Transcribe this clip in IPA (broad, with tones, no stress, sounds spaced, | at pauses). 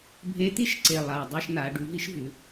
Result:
bʱ e˧˥ t̪ i˥ ʃ ǀ e˨˩ lˠ a˨˩ dˤ ʉ˦˨ ʃ n̪ a˩˧ ɖ ʉ˩˥ v i˥ ʃ v ʉ˩˥